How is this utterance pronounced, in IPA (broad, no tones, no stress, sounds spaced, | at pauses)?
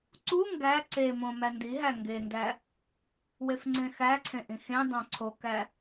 ǀ u ŋ ɡ æ ǀ e m õ m æ n d i ɦ æ ŋ ɡ e n d æ | w e f ŋ͡ǀ ẽ x æ ǀʰ ẽ ʔ ĩ x ẽ dˤ æ̃ ǀʰ o k æ